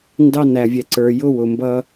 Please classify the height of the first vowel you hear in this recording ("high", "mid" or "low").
low